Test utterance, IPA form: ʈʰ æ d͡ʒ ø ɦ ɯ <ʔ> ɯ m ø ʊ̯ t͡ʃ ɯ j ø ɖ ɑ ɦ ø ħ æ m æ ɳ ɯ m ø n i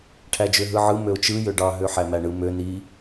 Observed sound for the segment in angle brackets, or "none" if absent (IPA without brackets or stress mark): ʕ